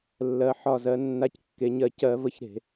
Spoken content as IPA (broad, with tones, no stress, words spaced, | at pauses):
lːɜ˩˧ħɒ˧˩zɜ˩˧ nːa˨˥ckːe˩˧ɲɜ˧˩ cɜ˧˩˧və˨˥ç ɾe̤˧˩˧